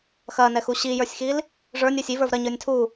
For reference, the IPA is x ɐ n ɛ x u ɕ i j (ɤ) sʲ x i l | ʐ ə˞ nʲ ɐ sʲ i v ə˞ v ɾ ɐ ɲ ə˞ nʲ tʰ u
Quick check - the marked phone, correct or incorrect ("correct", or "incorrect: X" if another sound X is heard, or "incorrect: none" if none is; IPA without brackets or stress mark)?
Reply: incorrect: ə˞